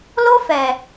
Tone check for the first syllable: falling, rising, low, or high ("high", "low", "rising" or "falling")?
high